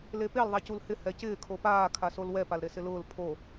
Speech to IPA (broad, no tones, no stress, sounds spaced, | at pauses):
l e p e l ðˤ a c u l h ɪ h ɛ c ɪː kʰ o p aː kʰ a s o l w ɛ p a l ɾ e s ɪ l ʊː l pʰ o